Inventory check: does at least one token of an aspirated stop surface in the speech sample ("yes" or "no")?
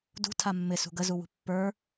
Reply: yes